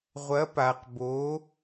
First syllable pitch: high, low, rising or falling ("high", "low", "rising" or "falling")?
rising